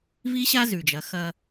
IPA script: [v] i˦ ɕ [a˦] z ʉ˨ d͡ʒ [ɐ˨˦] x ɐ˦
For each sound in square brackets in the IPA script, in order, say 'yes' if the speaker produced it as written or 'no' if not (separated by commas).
yes, yes, yes